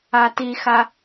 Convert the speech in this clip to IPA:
a t i x a

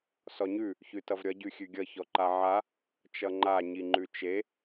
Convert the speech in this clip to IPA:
s ɔ ɲ ʉ | ç ʉ t ʌ v ɾʲ ʌ ɟ ʉ xʲ ʉ ɡʲ ʌ ç ɔ ǃ a ʕ a | t͡ʃ ʌ ŋ͡ǃ a ɲ i ŋ͡ǃ ʉ t͡ʃ e

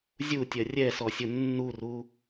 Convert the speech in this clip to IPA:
zʲ u tʲ ɜ rʲ ɛ s ɔ sʲ ʊ nː u r u

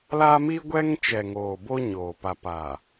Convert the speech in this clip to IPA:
l a˦ m i˦ ɡʷ ɛ˦ ŋ t͡ʃ ɛ˨ ŋ oː˨ b o˦ ɲ oː˨ p a˨ p a˨

